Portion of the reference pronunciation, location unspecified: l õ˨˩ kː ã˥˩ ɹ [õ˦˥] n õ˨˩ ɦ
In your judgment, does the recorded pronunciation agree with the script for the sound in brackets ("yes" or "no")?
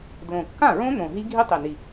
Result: yes